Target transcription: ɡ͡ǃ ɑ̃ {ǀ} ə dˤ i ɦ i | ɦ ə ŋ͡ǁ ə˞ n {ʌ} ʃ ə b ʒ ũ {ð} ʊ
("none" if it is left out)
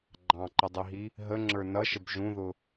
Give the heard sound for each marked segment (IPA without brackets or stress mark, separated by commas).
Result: ǃ, ʌ, ð